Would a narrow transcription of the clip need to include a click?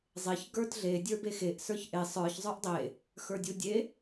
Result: no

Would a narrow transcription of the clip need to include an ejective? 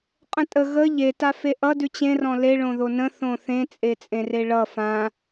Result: yes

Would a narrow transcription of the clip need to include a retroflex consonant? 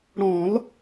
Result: yes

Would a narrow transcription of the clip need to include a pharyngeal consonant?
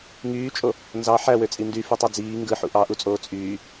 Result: yes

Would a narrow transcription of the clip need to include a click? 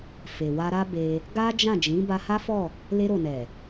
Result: no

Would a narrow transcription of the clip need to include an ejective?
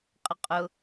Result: yes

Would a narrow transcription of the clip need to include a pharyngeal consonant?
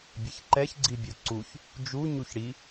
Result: no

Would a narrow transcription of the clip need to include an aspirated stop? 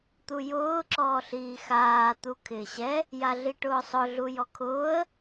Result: yes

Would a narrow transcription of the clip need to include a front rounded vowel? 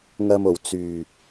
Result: yes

